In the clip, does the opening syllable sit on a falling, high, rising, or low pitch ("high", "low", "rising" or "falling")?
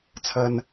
low